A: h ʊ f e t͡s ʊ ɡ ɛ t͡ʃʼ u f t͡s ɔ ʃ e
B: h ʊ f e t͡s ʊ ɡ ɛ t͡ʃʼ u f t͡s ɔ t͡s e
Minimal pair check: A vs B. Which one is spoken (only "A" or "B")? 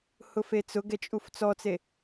B